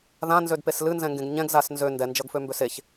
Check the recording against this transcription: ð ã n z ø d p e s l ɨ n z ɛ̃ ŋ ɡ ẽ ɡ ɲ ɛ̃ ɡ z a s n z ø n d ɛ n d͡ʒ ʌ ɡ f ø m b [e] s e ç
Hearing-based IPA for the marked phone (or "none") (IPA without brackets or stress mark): ø